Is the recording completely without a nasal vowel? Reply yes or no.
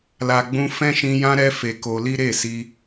no